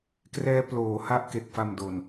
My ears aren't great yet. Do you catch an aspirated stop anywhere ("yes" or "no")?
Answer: no